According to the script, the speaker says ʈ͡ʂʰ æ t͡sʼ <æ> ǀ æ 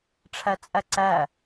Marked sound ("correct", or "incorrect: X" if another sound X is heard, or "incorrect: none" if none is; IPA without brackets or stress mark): correct